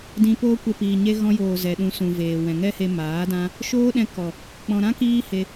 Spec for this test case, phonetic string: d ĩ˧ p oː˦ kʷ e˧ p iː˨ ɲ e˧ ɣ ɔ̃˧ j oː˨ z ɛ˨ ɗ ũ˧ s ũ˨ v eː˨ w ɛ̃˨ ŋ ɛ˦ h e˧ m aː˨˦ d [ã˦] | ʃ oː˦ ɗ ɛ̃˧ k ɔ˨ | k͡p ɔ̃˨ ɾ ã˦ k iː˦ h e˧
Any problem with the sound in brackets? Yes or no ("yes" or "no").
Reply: no